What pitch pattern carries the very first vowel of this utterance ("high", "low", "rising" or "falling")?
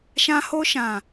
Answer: high